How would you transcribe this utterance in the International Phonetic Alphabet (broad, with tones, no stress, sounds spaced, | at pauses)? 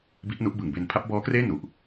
b i˦˥ ʔ n u˦˥ ʔ b ɯ˨˩ ŋ b e˧ n pʰ a˦˥ p̚ b ɔː˦˥ k r eː˥˩ n u˨˩ ʔ